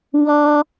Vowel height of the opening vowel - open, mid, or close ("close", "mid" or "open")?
mid